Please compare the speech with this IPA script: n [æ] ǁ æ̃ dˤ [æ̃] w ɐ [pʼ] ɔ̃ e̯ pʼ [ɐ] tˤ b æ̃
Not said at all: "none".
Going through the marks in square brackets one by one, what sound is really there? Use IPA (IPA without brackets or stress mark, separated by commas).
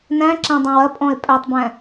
æ̃, æ̃, pʼ, æ